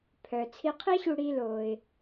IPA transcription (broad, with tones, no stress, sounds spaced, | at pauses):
pʰ œ˩ t͡sʰ i˧ qʰ i˥ ɕ u˧ ɽ i˧ l oː˩ ɪ̯